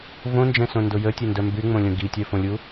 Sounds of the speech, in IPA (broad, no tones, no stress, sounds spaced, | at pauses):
v õ n d͡ʒ ɛ̃ s õ n d o j ə tʲ ɛ n d œ m b y ŋ͡m õ lʲ õ ɡ i tʲ œ f õ lʲ u